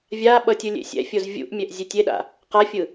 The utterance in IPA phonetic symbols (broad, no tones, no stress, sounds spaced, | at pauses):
vʲ a ɓ ʌ tʲ ɯ lʲ ḛ sʲ ɛ̰ fʲ o z vʲ ṵ ʔ mʲ ɛ ʔ zʲ e tʲ e ɗ a̰ | q a fʲ ɯ